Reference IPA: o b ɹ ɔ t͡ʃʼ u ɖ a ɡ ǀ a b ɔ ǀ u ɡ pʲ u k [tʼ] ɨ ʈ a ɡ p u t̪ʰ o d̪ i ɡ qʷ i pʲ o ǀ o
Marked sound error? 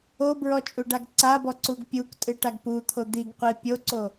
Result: no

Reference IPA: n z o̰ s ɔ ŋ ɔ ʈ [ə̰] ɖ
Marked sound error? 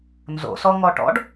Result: yes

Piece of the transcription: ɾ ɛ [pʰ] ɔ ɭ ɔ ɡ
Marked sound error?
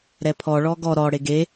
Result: no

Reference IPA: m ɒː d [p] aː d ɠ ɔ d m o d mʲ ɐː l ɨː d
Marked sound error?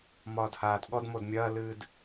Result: yes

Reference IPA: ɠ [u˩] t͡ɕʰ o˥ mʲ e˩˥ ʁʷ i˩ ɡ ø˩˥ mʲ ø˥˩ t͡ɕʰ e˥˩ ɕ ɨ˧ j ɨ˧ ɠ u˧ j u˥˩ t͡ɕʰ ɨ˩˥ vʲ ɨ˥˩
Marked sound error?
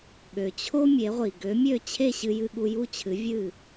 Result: yes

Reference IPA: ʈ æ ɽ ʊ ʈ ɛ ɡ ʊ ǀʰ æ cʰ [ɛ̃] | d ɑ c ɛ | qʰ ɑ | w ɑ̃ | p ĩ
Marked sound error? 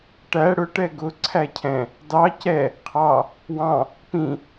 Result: no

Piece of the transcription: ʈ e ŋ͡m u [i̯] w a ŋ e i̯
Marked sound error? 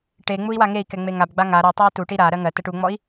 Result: no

